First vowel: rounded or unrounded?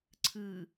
unrounded